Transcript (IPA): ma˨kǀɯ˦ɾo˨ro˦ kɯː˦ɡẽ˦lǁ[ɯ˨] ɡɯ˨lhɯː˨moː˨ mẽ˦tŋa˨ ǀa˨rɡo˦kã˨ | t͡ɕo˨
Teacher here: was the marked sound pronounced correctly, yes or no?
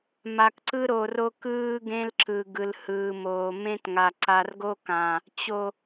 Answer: yes